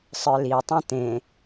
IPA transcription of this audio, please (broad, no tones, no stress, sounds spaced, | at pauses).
sˤ ə˞ l i ʊ̯ tˤ ũ t ẽ